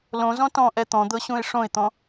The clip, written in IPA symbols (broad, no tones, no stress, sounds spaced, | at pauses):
l õ z ɔ̃ t ɔ̃ ʔ ɛ t̪ ɔ̃ d̪ ɤ ɕ ũ ɪ̯ ʂ õ ɪ̯ t̪ ɔ̃